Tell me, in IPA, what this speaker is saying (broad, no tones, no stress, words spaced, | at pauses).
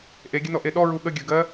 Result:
ʔeɡʲənɔʔe ɗɔɹu ɠəɡʲə˞ɡɜ